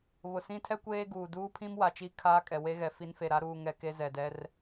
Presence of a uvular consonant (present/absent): absent